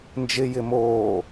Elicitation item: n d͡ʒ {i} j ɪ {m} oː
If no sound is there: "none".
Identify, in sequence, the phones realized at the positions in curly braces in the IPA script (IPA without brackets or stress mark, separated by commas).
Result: ɪ, m